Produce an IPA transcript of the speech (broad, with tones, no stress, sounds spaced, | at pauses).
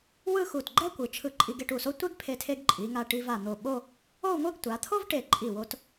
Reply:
w ɯ˥˧ x u˧˩ t ɡ͡ǃ ɛ˥ kʷ ɯ˩˧ t͡ʃʰ ɯ˧ ǃʼ i˧ ɡ e˥˧ ʈ u˧˩ s o˥ tʷ e˥ ɡ pʰ e˧ tʰ e˧ ɡ ǃʼ i˩˧ ŋ a˧ ʈ i˧ v a˧˩ n̪ o˧˩ ɓ o˥˧ | o˥˧ u̯ ŋʷ ɯ˥˧ ɡ tʷ a˩˧ t̪ʰ o˥ v ʈ e˧˩ ǃʼ i˧˩ w o˧ t